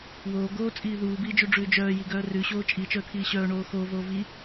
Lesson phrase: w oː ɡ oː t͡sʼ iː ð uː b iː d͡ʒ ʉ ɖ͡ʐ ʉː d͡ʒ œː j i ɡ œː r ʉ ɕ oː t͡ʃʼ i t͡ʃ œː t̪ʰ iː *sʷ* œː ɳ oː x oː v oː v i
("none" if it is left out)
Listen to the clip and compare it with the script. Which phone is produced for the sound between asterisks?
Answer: ɕ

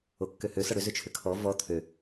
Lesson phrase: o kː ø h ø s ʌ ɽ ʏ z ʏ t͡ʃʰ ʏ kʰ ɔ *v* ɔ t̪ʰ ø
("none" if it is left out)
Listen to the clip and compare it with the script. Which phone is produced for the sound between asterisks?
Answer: v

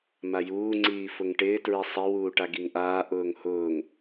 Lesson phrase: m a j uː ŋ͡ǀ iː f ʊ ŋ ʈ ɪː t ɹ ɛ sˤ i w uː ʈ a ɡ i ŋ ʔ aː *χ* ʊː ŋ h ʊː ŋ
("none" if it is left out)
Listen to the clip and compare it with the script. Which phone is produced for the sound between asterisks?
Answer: ʔ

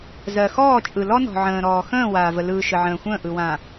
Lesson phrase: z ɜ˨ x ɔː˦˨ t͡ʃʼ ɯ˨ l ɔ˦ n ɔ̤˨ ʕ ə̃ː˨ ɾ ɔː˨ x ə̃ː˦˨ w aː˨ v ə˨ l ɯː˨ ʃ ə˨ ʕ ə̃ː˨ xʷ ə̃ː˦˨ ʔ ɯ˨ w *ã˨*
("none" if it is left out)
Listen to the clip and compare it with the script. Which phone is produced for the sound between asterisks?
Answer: ã˨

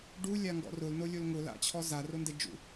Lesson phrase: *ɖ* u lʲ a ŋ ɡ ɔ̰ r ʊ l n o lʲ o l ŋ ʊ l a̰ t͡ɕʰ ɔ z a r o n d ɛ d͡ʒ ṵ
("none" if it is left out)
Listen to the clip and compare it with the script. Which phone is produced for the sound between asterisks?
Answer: ɖ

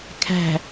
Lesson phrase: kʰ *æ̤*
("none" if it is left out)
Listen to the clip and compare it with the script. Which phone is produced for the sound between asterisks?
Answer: æ̤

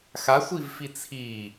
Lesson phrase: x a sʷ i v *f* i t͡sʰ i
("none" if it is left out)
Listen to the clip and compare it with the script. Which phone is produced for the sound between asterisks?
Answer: f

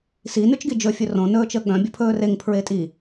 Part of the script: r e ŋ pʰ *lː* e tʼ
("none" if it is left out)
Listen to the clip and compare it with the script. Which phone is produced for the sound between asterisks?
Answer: ɹ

